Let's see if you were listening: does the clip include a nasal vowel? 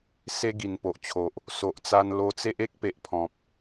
yes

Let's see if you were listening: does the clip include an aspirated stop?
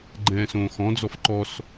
no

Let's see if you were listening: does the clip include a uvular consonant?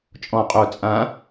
yes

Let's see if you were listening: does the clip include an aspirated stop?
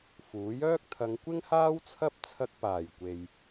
yes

